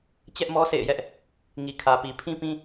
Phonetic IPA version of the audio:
t͡ɕ ɛ˦ ʔ m ɔ˦ s ḛ˦˨ ɪ̯ j ɛ˦ ʔ | ŋ i˨ kʰ ä˨ p i˨ pʰ ĩ˦ p ĩ˦

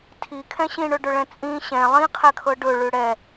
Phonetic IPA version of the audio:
tʰ i kʰ ɛ̃ ɕ ĩ ɳ ɵ ɖ ɵ ɭ ɛ̃ t͡sʼ ĩ ɕ ɛ̃ lˠ ĩ qʰ ɛ kʰ ɤ ɖ ɵ ɭ ʉ ɽ ɛ

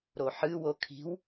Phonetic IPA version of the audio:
ɾ o ħ ɨ w o kʰ i̤ w

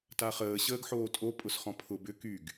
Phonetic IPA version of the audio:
t a χ əː ɕ əː ɡ ħ oː tʼ o pʼ ʊ s χ ɔ̃ pʰ ʊ b ʏ k y ɡ

